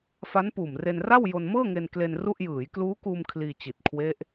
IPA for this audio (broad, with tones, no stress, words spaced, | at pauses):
fa˦˥npuː˨˩mre˧nra˥˩w jo˧nmɤː˥˩ŋe˧n kle˧n ru˥˩ʔ jɯː˩˦jkluː˦˥kuː˧m kʰliː˧t͡ɕi˨˩t̚kʰwe˦˥ʔ